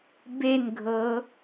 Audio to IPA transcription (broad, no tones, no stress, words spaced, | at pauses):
benɡʱɤ